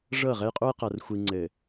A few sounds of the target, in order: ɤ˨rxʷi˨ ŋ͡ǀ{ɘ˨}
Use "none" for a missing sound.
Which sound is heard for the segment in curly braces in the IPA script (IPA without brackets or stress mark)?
ɘ˨